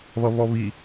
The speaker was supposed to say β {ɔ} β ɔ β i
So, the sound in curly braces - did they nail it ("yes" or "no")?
no